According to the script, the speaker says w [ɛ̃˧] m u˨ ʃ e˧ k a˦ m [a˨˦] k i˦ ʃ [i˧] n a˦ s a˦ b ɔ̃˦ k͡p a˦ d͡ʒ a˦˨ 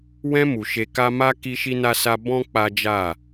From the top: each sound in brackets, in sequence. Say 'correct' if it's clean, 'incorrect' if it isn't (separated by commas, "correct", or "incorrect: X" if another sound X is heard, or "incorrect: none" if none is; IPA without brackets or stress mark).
correct, incorrect: a˦, incorrect: i˦